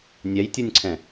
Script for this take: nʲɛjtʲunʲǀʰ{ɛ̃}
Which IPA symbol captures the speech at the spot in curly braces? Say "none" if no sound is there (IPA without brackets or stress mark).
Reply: ɛ̃